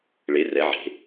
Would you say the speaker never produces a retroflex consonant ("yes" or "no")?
no